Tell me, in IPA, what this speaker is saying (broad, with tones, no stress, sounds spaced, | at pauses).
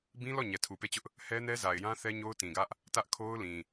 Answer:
b ĩ˦ l ɔ˦˨ ɲ ɛ˨ tʰ u˨ p e˦˨ t͡ɕ ʊ˦ ʔ | h ɛ˦ n ɛ˦ z a˨ ɪ̯ j ã˦ θ ɛ˦ ɲ o˦ ʊ̯ t ĩ˨ ɡ ä˦ ʔ | t ä˦ ʔ kʰ o˦ ʊ̯ l ĩ˨